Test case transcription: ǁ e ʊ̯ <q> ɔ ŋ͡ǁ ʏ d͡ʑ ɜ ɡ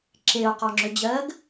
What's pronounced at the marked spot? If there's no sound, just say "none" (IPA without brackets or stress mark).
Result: q